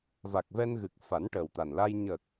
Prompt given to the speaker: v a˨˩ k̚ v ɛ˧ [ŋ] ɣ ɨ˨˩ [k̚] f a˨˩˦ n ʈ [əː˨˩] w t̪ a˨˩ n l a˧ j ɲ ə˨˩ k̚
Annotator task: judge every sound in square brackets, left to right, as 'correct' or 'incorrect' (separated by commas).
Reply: incorrect, correct, correct